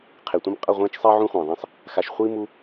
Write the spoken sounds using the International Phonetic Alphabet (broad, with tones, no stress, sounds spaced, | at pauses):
qʰ e˨ tʷ ɛ̃˦ m qʼ ʌ˦˨ ʁʷ ẽː˦ t͡ʃ sˤ iː˦ ʕ ũ˦ χʷ ɛ̃ː˨ ðˤ ẽ˦ sˤ | x a˧ ʃ χʷ iː˦ m u˦